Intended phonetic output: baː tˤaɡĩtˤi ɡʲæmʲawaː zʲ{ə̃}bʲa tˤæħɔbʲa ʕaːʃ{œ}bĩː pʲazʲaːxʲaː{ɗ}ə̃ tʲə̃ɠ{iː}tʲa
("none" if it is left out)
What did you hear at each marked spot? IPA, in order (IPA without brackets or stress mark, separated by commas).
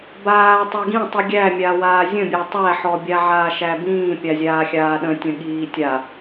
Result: ə̃, æ, ɗ, iː